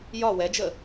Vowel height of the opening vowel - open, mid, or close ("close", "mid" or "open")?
open